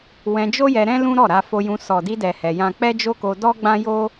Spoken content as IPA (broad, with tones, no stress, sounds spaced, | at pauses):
w ɛ̃˧ d͡ʒ o˦ j ɛ˧ ɾ ɛ̃˦ l ũ˦ ɾ ɔ˦˨ ɾ a˧ f o˧ j ũ˧ s ɔ˨ d i˧ d ɛ˨ h ɛ˧ j ã˦ k͡p ɛ˦ d͡ʒ o˦ k o˧ d ɔ˦ ɡ͡b ã˦ j o˦